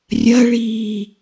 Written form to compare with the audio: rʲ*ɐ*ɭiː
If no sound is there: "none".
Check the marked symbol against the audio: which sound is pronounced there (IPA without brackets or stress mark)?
ɐ